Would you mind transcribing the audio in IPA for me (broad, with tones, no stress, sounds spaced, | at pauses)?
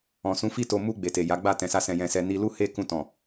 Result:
ɔ̃˨ s ũ˨˦ f i˦ t o˧ m u˧ ɡ͡b e˨ t e˨ j a˨˦ ɡ͡b a˦˨ t ɛ̃˨ s a˧ s ɛ̃˨ j ɛ̃˨ s ɛ˨ n i˧ l u˦ h e˦˨ k ũ˧ t ɔ̃˨